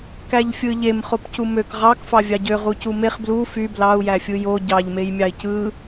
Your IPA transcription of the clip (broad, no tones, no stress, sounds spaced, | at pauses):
k æ ʎ fʲ ɯ ʎ e m χ o p c u m ø k ʁ ɑ k f ɑ vʲ ɑ ɟ ø ʁ u c u m e χ b l u f y b l ɑ u̯ j æ fʲ ɯ j o ɟ ɑ ʎ m e j mʲ ɑ i̯ c ɯ